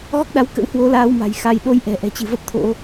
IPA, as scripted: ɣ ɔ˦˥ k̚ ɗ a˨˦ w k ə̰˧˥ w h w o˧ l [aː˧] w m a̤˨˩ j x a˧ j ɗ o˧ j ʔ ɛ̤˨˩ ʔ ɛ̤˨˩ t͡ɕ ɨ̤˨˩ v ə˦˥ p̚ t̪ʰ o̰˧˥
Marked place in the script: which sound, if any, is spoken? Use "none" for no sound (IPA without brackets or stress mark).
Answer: aː˧